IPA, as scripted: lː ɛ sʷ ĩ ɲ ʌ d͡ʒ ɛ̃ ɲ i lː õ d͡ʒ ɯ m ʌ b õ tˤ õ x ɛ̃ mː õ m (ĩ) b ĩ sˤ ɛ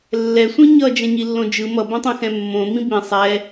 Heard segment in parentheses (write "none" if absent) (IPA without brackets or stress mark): ĩ